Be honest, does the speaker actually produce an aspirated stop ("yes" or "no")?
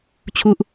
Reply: yes